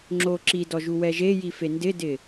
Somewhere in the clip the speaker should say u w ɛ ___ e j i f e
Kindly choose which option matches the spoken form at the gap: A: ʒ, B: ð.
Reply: A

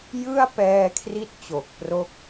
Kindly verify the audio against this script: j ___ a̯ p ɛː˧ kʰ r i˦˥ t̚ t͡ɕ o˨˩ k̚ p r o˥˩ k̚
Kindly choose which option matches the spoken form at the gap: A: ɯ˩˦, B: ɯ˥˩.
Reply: B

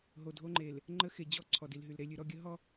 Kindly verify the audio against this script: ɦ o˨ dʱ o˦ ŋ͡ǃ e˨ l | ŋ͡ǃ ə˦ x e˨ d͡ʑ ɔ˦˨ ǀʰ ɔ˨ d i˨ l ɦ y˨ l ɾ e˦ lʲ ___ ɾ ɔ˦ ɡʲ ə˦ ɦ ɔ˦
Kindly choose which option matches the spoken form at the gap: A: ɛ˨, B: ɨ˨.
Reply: B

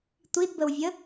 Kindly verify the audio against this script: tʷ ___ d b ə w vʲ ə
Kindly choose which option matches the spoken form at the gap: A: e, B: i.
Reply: B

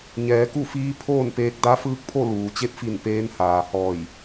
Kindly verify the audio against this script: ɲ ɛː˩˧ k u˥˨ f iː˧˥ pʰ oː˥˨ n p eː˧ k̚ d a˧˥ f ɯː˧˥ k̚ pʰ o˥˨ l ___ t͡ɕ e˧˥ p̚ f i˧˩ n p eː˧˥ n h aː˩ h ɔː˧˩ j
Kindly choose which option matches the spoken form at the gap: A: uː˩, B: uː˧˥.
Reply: A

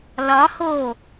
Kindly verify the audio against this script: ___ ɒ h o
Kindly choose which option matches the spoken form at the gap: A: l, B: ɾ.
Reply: A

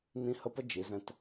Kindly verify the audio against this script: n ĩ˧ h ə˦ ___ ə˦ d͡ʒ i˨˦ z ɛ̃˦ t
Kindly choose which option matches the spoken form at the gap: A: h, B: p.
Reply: B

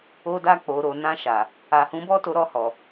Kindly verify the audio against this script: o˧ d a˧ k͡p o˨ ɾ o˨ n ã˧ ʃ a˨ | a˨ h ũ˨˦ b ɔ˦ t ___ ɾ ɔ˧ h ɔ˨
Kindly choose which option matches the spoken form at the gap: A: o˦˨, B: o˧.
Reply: B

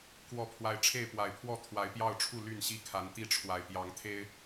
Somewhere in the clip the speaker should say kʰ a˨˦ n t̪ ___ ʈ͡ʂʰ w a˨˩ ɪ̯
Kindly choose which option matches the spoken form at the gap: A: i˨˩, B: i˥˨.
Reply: B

